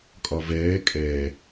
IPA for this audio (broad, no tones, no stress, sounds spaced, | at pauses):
kʼ ɒ v ɛː kʼ ɛ